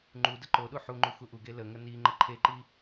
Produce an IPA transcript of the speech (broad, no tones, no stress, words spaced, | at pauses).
ŋ͡ǃu dəǃoɗu ħuŋ͡ǃux uʔuɡe ləŋə ni ŋ͡ǃəǃʰeǃi